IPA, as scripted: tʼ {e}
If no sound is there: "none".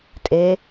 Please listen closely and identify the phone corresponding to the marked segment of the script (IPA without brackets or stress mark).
e